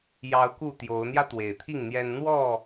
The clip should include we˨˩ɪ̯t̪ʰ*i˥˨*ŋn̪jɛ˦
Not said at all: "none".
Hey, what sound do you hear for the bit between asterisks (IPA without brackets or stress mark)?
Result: i˥˨